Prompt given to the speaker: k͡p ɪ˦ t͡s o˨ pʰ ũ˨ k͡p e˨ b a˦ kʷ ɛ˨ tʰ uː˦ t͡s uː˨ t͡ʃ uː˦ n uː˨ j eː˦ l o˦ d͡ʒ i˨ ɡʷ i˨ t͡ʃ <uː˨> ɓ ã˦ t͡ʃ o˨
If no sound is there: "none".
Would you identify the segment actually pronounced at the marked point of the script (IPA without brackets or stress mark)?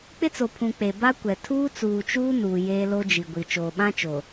oː˨